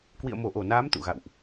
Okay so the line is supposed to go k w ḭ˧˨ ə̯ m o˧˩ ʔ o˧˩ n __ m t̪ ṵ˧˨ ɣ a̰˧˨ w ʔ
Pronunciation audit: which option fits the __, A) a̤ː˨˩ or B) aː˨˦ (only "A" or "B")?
B